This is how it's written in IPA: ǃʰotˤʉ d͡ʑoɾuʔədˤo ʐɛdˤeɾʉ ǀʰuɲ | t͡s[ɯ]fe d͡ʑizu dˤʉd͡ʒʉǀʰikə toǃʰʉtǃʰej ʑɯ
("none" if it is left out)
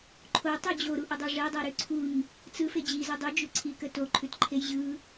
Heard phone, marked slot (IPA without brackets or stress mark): ɯ